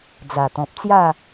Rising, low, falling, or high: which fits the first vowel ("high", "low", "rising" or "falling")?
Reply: low